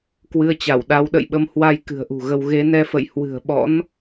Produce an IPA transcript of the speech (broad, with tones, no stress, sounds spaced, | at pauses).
k w ɨ˧ ə̯ t͡ɕ a˧˩ w ɗ a˨˦ w ɗ ə̰˧˨ j ɓ ə˧ m h w a˧ j k ɨ̤˨˩ ə̯ ʔ ṳ˨˩ ɣ ə˧ w ɣ e˨˦ n ɛ˧ f ə̰˧˨ j h w ɨ̤˨˩ ə̯ ɓ ɔ̰˧˥ n